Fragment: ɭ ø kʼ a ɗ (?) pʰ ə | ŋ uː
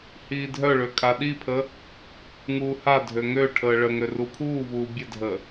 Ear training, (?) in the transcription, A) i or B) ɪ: A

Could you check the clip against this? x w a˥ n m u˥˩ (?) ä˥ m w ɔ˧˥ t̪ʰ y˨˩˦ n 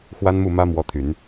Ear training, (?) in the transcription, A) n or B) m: B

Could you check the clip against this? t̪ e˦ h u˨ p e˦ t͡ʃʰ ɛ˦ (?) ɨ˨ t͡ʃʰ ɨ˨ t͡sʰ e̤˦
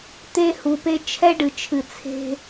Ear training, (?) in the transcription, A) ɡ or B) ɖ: B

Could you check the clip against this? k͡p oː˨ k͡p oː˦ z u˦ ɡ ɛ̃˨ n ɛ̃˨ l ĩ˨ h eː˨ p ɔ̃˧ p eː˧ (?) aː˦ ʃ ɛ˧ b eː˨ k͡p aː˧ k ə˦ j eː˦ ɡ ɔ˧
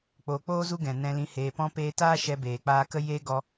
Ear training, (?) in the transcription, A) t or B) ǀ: A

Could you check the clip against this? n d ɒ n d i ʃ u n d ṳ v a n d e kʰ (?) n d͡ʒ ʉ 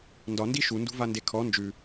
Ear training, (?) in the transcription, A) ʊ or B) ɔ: B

